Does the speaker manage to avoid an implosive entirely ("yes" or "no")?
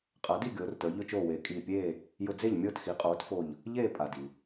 yes